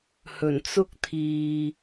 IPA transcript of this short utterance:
h ɵ˨˩ n t͡s ʊ˥ k̚ t̪ʰ iː˨

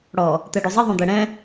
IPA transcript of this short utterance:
ɽ ɔ | t̪ ɛ ɖ u zˤ i ðˤ ũ d̪ ɛ ɽ ɛ̃

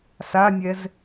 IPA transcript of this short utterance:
s a nʲ ɛ z

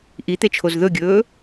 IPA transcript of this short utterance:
ʔ i t̪ e t͡ʃʰ o z ð ɵ ɡʲ ɵː

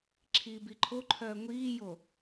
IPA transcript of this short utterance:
ǁʰ iː b i ǃʰ o ǃʰ œː ŋʷ iː j o

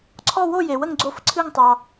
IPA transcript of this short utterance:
ǀʰ ɔ˦˨ w o˦˨ j e˨ w ə˦˨ ŋ ɡ͡ǀ o˦˨ f ǀʰ ɨ˦˨ ŋ tˤ ɑ˨

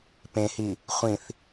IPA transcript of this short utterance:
p ẽ h i | χʷ ĩ θ

